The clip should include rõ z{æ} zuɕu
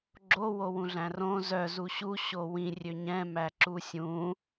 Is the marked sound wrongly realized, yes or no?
yes